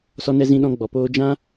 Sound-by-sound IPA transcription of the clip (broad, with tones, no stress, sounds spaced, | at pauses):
s ɔ˧ n ɛ˧ z ĩ˧ ɗ ɔ̃˧ ɡ͡b ɔ˨ p oː˧ d͡ʒ ã˦